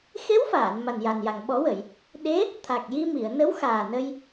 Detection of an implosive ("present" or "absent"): present